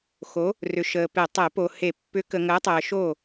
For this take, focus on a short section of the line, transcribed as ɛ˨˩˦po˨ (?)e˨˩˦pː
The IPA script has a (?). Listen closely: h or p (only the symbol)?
h